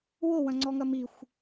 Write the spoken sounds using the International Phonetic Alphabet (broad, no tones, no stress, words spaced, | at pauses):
wowɐ̃ŋ͡ǀɔŋɐ mixʷ